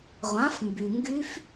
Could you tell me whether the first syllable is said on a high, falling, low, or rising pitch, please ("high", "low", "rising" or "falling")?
rising